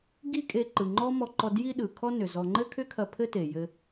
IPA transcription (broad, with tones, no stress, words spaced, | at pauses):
ɡi˥kʼe˧ ǃɯ˩ŋ͡ǃɔ˥mɔ˧ǃɔ˧ dji˥ɗɯ˩kʰɔ˥nʏ˩ zɔ˧ ŋ͡ǃɘ˥kʰʏ˥kʰɐ˧ pʰɘ˥te˩jɘ˧